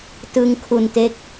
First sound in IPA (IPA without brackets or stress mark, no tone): t